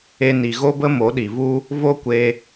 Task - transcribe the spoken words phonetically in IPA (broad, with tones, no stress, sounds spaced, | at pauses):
e˦ n i˧ ɣ o˦ b ə˦ m o˨˦ ɗ i˨ v u˦ | v o˦ kʷ e˧